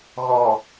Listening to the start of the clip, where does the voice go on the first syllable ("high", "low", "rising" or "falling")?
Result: low